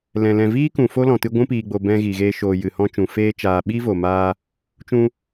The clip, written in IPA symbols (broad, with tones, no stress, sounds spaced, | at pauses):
l ɛ̃˨ l ɛ̃˨ v iː˦ k ũ˨ f o˦ l ɔ̃˨ t ɨ˧ ɡʷ ũ˧ p iː˨ ɡ͡b o˨ b ɛ̃˧ ɣ i˨ ɣ eː˧ ʃ oː˨ j ɨ˨ h ɔ̃˧ t͡ʃ ũ˨ f eː˦ t͡ʃ aː˧ ɓ i˦ v o˨ m aː˧ | t͡ʃ ũ˧